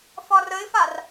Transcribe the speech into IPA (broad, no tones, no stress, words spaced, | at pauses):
fɒrəɪ̯far